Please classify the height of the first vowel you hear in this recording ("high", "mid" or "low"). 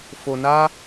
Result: mid